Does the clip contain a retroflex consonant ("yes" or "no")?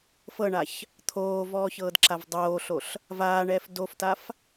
yes